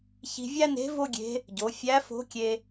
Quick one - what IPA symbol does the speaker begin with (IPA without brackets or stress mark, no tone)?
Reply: ç